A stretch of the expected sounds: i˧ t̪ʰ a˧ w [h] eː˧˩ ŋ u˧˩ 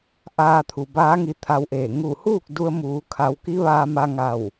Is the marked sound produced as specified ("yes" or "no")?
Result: no